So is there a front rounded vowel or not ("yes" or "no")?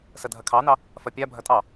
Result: no